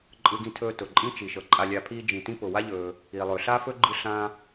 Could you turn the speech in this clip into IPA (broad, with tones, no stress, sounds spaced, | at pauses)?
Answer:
ǃʼ ɯ˧ ɡ ĩ˧ tʰ ɵː˧ t ʊ˩ ǃʼ ĩ˥ t͡ʃ i˩ ʃ ɤ˩ ǃʼ a˧ lʲ a˧ pʰ iː˥ d͡ʒ ĩ˩ t ĩ˥ p ʊ˩ w a˥ ʎ ɵː˩ | i˩ lˠ ɵ˩ ɬ a˥ f ɵ˥ ɡ͡ǃ ɯ˥ ɬ ã˥